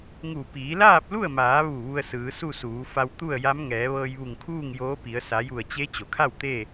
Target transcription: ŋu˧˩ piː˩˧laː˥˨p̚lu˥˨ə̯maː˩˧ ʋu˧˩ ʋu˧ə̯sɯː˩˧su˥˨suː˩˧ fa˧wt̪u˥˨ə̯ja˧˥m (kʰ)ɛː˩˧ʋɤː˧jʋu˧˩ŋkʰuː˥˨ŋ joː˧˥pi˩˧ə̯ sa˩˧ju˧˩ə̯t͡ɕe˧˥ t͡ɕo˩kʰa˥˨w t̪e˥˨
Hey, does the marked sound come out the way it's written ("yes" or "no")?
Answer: no